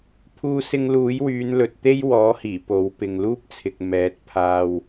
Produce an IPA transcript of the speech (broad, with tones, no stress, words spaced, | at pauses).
pʰuː˥sɪ˥ŋ luː˨˥jwyː˨˧nlɵ˨t̚t̪e˥j wɔː˨˥hiː˨˩ po˨˥wpɪ˧ŋ luː˥p̚t͡sʰɪ˨k̚ mɛː˨˥t̚pʰaː˧w